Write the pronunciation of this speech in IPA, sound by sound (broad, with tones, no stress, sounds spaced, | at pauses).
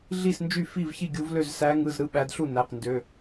ɮ i˥˩ s n d͡ʒ y˥˩ f i˥˩ v ç i˥˩ ɡʲ u˨˦ v l ø˥˩ z s æ˨˦ ŋ ɯ˩˧˩ z ɾ ɯ˥˩ ɓ æ˨˦ d ɬ u˥˩ n æ˩˧˩ q n d ø˩˧˩